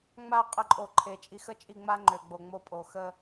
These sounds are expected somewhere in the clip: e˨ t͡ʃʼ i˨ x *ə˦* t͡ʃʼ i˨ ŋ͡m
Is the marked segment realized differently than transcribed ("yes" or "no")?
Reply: no